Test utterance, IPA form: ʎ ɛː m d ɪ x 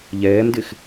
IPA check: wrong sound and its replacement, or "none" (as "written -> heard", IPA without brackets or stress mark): none